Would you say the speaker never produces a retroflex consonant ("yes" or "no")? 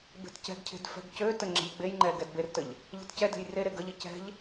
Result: yes